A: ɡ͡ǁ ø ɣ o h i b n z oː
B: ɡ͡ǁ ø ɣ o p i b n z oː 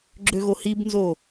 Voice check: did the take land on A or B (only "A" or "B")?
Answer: A